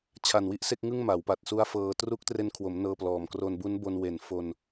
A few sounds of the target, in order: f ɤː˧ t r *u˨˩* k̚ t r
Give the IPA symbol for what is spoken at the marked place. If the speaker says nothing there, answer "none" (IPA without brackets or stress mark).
u˦˥